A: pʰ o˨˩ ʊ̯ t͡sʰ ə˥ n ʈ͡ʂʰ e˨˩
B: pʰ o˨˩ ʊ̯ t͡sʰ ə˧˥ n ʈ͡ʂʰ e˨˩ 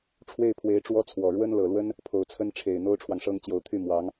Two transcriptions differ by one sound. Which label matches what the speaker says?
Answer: A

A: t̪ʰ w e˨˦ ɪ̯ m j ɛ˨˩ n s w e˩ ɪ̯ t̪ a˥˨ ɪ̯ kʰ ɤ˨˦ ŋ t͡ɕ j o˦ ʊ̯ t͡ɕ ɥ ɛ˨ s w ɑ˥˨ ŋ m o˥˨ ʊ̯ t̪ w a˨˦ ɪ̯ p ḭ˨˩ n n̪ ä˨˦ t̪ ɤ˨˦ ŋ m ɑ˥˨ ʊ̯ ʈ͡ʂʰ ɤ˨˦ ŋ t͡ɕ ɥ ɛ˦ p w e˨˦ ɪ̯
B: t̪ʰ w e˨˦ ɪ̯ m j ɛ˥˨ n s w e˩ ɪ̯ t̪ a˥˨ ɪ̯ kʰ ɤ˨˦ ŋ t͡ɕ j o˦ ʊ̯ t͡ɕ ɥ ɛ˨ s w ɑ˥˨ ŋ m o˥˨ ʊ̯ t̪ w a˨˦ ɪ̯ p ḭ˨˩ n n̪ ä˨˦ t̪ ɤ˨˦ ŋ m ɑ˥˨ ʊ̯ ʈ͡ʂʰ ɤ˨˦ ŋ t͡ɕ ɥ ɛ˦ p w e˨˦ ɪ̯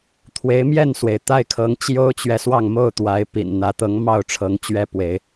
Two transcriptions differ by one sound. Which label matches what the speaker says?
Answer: B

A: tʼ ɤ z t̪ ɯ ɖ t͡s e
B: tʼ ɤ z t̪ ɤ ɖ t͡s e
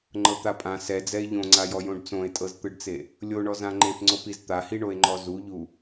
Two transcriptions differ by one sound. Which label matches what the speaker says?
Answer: A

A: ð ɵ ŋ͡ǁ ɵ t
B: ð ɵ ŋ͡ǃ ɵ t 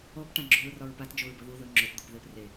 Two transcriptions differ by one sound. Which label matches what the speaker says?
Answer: A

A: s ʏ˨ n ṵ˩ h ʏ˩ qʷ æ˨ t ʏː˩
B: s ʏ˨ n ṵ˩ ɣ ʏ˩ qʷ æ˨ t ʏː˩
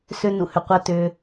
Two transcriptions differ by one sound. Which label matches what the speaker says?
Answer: A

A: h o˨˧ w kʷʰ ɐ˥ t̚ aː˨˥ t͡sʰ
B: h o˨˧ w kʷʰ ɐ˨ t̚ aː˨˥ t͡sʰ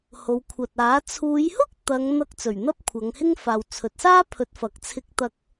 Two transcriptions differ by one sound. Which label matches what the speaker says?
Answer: B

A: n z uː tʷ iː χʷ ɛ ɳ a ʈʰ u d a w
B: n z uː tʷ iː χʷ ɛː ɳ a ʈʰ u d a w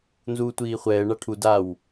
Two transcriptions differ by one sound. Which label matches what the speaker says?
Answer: B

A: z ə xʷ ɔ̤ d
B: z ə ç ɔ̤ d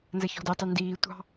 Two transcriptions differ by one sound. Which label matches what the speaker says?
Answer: B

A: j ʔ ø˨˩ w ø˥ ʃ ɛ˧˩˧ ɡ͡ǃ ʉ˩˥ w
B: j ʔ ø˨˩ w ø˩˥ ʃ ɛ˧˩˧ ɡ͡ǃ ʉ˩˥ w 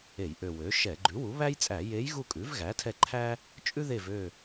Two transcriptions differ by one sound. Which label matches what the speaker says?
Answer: B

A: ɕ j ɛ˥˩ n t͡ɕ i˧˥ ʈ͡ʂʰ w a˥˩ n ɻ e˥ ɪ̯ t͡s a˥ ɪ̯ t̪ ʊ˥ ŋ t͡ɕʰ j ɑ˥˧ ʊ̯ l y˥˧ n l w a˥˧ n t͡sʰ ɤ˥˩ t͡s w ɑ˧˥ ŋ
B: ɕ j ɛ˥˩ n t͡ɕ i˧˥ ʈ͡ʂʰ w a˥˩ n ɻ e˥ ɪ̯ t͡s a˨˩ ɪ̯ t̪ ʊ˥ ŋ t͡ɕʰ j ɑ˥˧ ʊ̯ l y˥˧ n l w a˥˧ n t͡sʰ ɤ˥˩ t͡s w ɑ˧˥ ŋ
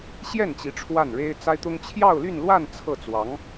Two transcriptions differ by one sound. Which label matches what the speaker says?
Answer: A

